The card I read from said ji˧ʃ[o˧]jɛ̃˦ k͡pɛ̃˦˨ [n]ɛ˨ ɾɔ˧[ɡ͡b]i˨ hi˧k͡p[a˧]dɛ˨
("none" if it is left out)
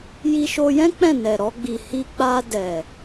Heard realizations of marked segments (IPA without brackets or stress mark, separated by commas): o˧, n, ɡ͡b, a˧